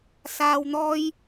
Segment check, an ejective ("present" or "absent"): absent